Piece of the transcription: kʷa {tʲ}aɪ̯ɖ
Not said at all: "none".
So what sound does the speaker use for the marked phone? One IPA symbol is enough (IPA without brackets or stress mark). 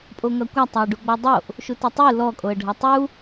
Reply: tˤ